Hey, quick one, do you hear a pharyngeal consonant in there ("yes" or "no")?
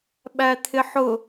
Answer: yes